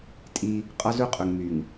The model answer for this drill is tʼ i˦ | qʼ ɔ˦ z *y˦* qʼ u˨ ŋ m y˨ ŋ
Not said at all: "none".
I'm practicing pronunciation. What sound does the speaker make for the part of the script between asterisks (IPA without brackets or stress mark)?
u˦